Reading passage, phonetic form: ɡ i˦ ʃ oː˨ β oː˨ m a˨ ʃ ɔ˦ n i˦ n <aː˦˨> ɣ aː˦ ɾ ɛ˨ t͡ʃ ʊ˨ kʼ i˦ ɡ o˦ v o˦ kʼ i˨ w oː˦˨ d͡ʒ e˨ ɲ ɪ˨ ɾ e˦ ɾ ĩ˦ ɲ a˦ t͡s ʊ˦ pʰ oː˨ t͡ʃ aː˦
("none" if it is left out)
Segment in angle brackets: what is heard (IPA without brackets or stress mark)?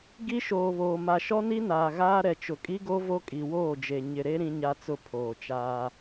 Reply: aː˨